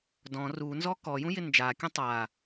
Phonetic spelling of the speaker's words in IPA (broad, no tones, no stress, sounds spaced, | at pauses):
d ɔ̃ r u n z ɔ k ɔ j ũ j ɪ n d͡ʒ a kʲ ũ tˤ a